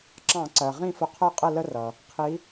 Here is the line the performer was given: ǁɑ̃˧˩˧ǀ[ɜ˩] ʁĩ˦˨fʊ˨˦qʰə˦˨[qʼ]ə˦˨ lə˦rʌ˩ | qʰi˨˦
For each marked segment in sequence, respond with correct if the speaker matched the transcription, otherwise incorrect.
correct, correct

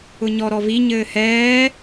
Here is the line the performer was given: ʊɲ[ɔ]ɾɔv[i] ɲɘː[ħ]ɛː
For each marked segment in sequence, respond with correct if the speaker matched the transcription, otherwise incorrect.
correct, correct, incorrect

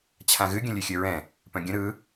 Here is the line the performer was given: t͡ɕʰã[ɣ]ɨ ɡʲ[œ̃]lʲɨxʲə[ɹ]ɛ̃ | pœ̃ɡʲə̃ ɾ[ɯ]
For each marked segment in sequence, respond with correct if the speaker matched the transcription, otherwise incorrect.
correct, incorrect, correct, correct

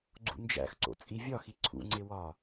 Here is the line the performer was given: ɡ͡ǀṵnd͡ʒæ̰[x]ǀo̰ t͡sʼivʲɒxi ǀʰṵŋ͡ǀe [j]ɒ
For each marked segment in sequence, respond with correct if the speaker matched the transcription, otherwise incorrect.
correct, incorrect

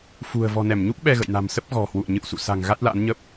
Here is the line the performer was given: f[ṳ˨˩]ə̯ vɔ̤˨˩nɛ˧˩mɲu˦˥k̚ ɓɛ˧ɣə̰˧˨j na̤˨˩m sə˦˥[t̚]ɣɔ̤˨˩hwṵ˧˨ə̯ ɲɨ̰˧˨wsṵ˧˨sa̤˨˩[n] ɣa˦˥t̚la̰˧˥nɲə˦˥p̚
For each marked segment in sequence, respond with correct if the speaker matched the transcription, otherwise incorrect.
correct, incorrect, incorrect

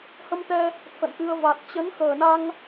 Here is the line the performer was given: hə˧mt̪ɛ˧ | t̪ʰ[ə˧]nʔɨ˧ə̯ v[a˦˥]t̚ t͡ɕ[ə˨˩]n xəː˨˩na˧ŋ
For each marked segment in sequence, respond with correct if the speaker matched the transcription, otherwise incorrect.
incorrect, incorrect, incorrect

